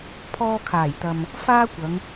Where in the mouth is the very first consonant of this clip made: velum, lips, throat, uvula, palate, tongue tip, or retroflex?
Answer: lips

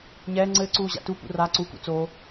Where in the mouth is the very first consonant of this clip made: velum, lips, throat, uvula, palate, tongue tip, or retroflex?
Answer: palate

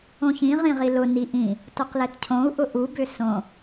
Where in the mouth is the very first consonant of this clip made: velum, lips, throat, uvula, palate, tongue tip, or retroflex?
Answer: palate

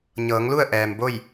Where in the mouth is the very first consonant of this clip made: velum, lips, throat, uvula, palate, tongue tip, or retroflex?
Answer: palate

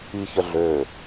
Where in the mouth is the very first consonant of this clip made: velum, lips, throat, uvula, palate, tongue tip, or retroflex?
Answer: palate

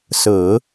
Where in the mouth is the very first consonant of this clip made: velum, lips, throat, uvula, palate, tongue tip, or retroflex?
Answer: tongue tip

